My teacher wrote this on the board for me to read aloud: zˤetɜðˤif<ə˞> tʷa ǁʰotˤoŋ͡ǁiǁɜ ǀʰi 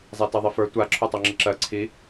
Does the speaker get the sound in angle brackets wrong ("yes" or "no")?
no